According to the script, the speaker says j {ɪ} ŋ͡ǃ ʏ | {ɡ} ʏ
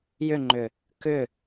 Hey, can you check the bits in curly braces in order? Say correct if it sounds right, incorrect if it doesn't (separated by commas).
incorrect, incorrect